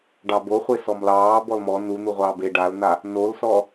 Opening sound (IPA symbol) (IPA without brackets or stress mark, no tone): ɖ